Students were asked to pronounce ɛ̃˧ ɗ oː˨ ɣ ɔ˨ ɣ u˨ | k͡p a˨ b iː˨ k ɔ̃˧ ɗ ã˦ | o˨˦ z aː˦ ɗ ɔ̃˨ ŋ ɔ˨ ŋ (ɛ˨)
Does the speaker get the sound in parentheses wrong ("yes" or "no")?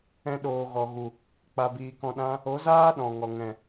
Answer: yes